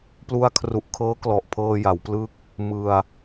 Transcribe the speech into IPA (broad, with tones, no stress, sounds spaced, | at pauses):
p l u˧ a̯ kʰ r u˨˩ ʔ kʰ ɤː˦˥ k l ɔ˨˩ ʔ pʰ ɤː˧ j a˩˦ w p l ɯ˥˩ k̚ | m ɯ˧ a̯